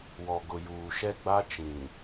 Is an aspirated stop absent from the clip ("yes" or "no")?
yes